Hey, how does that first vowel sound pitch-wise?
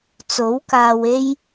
rising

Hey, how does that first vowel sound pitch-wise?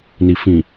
low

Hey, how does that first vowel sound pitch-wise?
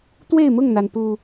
falling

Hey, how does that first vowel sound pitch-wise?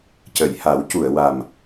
low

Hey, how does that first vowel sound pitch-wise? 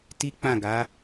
high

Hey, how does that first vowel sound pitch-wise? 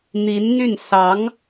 rising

